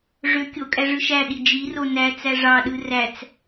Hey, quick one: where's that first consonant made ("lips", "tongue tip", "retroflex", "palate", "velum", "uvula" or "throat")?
retroflex